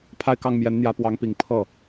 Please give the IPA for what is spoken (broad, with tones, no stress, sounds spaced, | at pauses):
pʰ a˥˧ ɪ̯ k ɑ˥˩ ŋ m j ɛ˧˥ n n̪ j ä˧˥ p w ɑ˧˥ ŋ p i˨˩ ŋ pʰ ɤ˥˩